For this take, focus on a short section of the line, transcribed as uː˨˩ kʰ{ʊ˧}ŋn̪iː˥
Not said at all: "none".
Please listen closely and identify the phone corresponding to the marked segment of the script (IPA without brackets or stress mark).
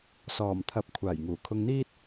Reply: ʊ˧